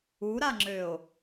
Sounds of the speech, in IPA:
u ɾ a ŋ͡ǁ ø o̯

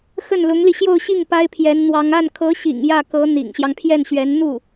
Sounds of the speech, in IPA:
x ə˥˩ n l ʊ˧˥ ŋ l i˧ ɕ j o˥˧ ʊ̯ ɕ i˥˩ ŋ p a˥ ɪ̯ pʰ j ɛ˧˥ n n̪ w ɑ˧˥ ŋ a˥˩ n kʰ ɤ˧˥ ɕ ḭ˨˩ ŋ j ä˥˩ k ɤ˧˥ n̪ ḭ˨˩ ŋ ɕ j ɑ˦ ŋ pʰ j ɛ˥˩ n ɕ ɥ ɛ˧˥ n n̪ u˥˩

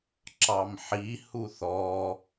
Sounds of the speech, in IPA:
ǁ ɑ m ħ i h u θ ɔ

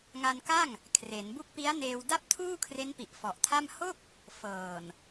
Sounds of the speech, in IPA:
ŋ a˧ n k a˥˩ ŋ | kʰ r e˩˦ n b u˦˥ k̚ p i˦˥ a̯ n eː˧ w d a˥˩ p̚ tʰ uː˥˩ kʰ r e˦˥ n p i˨˩ ʔ f ɔ˨˩ ʔ tʰ a˥˩ m h o˥˩ k̚ | f ɤː˨˩ n

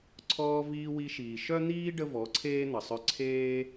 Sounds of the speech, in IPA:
ǀʰ ɔː˧ v iː˧ w i˧ ʃ iː˨ ʃ œ˦ n̪ iː˦ ɖ ə˦ v ɔ˨˦ ǀʰ eː˦ n̪ ə˨ sˤ œ˧ ǀʰ eː˦

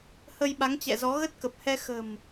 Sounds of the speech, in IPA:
h ə˧ j ɓ a˨˦ ŋ t͡ɕ ɛ̰˧˨ z ɔ˨˦ ɣ ə˦˥ t̚ k ə˨˩ p̚ h ɛ˧ x ə̤˨˩ m

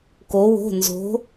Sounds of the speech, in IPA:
k o˧˥ w o̤˧˥˧ n z o̤˧˥

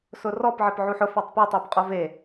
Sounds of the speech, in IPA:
s ʊ r ɔ p ʕ ɪ p ʕ u ħ ʊ f a tˤ p i tˤ u b qʼ o v e

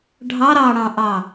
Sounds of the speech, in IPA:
ɖʱ ɑ ɾ ɑ ɽ ɑ̃ ʔ ɑ

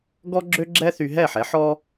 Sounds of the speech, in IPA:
ɡ ɔ˥ ɡ͡ǁ ø˥ ɡ͡ǁ ɛ˥ θ y˧ ɦ ɛ˥˩ ħ ɛ˩˥ ħ ɔ˥

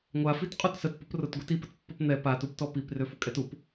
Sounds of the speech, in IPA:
ŋʷ a f i t qʼ u t s ə t p ʊ p r ʊ t ɡʷ i t i p ə t pː ɔ p n̪ ɛ p a t u p t ɔ p i p r ø f ʊ kʼ ɛ t u p

